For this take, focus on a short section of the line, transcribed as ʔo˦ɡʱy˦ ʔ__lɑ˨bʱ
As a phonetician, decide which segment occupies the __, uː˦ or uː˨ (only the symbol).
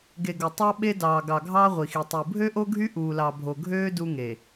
uː˨